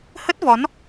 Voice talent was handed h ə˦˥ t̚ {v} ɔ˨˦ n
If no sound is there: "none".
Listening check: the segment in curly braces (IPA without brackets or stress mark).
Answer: v